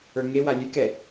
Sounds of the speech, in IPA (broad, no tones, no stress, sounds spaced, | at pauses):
ə˞ ŋ e w a lʲ ʉ k ɛ